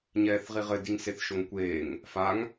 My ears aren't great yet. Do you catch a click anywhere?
no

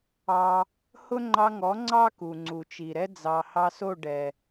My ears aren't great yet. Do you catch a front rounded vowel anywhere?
no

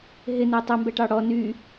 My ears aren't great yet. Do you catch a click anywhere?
no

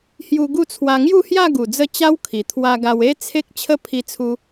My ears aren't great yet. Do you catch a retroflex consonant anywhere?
no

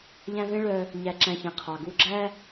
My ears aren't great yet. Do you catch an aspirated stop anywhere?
yes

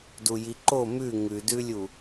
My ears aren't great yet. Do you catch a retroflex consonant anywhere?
no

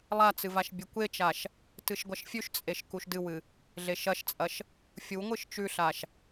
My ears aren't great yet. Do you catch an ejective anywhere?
yes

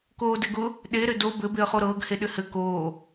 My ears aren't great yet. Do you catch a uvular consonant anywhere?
yes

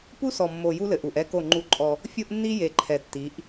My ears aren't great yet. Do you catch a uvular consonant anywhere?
no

